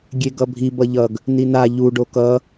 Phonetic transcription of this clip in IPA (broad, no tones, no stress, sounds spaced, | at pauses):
ɡʲ e ɡ ʌ bʱ i b ʌ ʎ ʌ ɡ | n i n a ʎ u ɖ o k ʌ